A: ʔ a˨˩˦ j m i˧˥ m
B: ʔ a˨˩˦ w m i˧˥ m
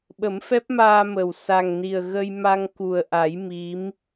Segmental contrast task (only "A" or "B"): A